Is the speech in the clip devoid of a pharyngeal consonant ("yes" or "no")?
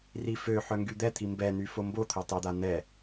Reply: no